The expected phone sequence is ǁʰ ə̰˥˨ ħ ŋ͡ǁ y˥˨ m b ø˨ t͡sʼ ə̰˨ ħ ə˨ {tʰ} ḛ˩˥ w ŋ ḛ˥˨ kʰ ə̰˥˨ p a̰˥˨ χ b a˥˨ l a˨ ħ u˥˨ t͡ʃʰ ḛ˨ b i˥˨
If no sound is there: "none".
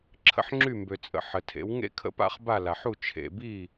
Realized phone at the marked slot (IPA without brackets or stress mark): tʰ